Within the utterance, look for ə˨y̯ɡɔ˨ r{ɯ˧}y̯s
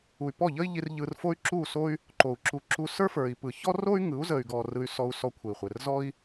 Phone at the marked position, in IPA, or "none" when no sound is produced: ɯ˧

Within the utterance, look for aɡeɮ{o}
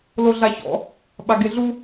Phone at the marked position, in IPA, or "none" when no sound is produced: u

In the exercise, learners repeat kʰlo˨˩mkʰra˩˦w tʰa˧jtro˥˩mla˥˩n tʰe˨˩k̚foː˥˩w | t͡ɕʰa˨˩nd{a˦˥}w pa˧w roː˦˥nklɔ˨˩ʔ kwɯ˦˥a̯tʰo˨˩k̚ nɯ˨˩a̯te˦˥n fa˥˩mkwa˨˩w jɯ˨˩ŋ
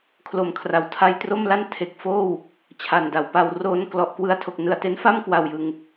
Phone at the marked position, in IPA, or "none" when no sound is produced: a˩˦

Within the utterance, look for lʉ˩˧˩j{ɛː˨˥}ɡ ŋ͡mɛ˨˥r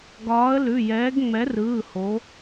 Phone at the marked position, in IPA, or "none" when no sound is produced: ɛː˨˥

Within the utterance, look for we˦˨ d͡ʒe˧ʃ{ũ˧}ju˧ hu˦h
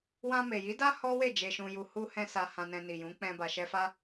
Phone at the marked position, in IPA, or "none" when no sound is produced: ũ˧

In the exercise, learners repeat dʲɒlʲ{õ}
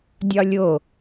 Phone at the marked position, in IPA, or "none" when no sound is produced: o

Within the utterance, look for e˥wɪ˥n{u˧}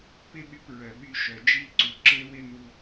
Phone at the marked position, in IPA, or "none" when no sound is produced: u˧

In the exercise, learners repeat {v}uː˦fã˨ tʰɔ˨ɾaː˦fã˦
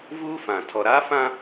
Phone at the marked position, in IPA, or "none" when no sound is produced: v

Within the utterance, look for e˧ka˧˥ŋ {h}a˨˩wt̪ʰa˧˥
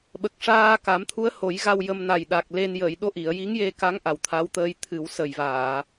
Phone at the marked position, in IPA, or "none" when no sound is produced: ʔ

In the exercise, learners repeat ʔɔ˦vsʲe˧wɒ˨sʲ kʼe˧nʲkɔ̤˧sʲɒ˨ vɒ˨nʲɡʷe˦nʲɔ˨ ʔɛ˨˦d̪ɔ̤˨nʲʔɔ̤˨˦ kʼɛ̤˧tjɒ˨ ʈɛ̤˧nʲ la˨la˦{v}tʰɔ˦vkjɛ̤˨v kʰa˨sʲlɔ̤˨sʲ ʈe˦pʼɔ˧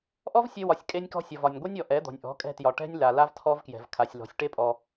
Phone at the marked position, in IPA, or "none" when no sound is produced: v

